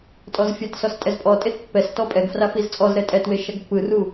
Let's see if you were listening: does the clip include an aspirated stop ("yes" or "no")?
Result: no